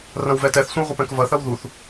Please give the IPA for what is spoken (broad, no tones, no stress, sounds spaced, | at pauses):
r ɐ̃ w v ɛ t ɛ θ sʷ ə̃ w ʁʷ ə p ɛ̃ k v ɐ θ ɐ w ð u θ